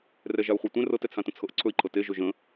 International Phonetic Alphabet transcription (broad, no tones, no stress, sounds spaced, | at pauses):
r ɛ ʒ a u̯ χʷ ɤ tʷ ɛ̃ r ɤ t ɛ t͡sʰ ã t ə̃ t͡sʰ ɤ ʔ ǀʰ ɵ i̯ ǃʰ ɤ t e ʒ ɵ ʒ ə̃